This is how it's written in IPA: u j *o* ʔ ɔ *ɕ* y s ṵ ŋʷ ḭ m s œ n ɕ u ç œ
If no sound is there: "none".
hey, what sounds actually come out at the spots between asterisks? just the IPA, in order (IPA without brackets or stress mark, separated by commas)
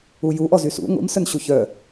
u, z